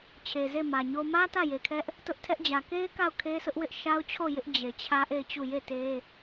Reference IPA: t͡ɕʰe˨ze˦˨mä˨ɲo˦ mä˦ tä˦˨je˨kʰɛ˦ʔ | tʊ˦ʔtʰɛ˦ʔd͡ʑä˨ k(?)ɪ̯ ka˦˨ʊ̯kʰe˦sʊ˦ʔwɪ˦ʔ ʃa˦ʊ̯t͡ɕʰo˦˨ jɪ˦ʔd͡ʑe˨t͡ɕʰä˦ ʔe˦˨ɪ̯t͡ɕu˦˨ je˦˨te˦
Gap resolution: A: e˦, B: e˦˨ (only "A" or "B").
A